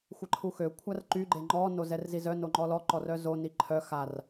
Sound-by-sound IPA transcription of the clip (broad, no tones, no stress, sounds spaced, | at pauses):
xʷ ə ǃʰ u x ø kʷʰ a r ǃ y ɡ͡ǃ e ŋ͡ǃ ɔ n o z ɛ r z i z œ n o ŋ͡ǃ ɔ l ɔ ǃ ɔ r œ z o n i ǃʰ œ x a r